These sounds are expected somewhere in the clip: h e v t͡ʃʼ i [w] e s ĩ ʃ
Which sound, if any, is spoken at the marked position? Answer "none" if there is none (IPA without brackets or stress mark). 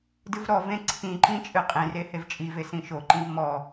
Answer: v